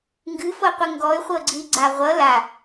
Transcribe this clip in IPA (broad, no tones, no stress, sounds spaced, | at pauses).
ŋ ɡ ɨ f ɤ qʷ ɨ ŋ ɡ ɔ y̯ χʷ ɤ ɡ͡ǀ ɨ i̯ ɡ͡ǀ a ʁʷ ʌ l a